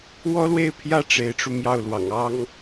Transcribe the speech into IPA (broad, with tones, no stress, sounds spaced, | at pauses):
w ɔ˥ l w e˥˩ ɪ̯ pʰ j ä˥ ʈ͡ʂ e˧˥ ɪ̯ ʈ͡ʂ u˧ m j ɑ˥˩ ʊ̯ l w ɑ̰˨˩ ŋ ɑ˥ ŋ